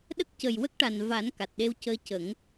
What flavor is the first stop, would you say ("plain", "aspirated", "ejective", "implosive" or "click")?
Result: implosive